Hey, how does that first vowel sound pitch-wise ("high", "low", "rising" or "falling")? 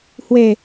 low